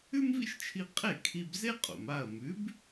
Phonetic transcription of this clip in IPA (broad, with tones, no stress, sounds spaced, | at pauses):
ʉ˥ m v ḭ˥ ʃ t͡ʃʰ i˧ qʼ e˥˩ kʰ i˧ b z e˥ qʼ o̰˩ m a˥˩ ɐ̯ m ʉ˩˥ b